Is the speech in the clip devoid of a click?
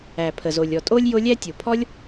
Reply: yes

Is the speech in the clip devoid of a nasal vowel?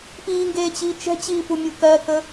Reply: yes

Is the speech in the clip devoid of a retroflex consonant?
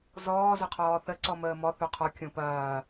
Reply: yes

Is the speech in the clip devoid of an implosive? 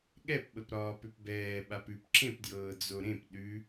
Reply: no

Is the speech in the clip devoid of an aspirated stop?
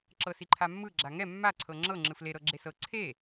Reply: no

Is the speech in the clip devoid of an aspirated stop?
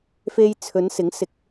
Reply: no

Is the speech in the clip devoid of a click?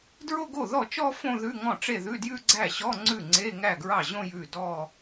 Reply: no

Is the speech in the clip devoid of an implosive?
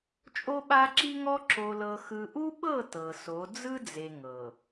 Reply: no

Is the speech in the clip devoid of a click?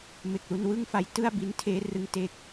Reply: yes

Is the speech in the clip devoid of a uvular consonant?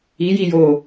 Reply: yes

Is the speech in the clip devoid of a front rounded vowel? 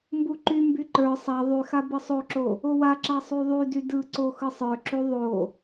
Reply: no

